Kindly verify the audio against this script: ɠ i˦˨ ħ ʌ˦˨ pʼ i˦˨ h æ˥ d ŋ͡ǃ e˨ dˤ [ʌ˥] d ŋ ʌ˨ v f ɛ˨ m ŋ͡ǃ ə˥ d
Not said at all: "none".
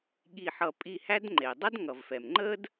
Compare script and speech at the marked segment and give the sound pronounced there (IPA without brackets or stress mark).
ʌ˥